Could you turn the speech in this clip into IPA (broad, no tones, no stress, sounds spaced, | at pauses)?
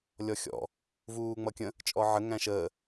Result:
lʲ ɔ xʲ ɔ̰ | v uː ŋ͡m ʌ kʲ ə̃ | t͡ʃʼ ɔ ʕ ə ŋ æ̃ ʃ əː